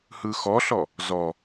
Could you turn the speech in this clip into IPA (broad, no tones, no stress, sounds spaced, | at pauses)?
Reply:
h ɯ x ɔ ɬ ɔ | z ɔ